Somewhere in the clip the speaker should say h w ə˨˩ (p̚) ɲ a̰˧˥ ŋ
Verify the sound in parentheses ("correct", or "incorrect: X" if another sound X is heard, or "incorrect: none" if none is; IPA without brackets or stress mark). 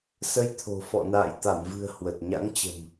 incorrect: t̚